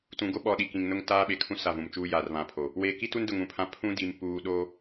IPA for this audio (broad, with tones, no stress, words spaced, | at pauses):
tũ˨ɡo˦ɓɔ˨ ɗi˨kĩ˨ŋnʊ˦ŋ taː˦ɓe˨kʰũ˦ sa˦˨vũ˨mt͡ʃuː˦ jaː˨rβã˨˦pʰo˨ | weː˨ki˦tu˦ndʊ˨ŋ ũ˨pʰã˦ pʰũ˦ di˨m puː˨ɗo˦